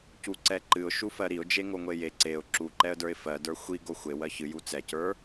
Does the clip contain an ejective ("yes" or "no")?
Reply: no